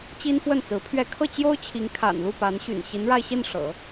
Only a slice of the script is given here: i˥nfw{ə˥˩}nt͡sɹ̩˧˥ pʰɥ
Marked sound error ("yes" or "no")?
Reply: no